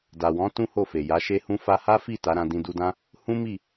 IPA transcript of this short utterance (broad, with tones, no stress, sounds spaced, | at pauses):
d a˨ w ɔ̃˨˦ t ũ˦ h o˦˨ f e˨ j a˨˦ ʃ e˦ h ũ˦ f a˧ h a˦ f i˦˨ t a˨˦ ɾ ã˧ d ĩ˧ d u˧ d ã˦ | h ũ˦ m i˦˨